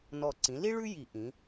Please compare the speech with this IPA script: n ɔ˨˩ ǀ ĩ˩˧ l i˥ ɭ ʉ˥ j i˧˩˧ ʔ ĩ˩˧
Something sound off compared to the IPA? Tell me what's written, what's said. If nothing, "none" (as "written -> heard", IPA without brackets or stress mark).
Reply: none